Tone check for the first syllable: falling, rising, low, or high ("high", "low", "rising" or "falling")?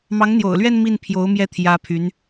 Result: rising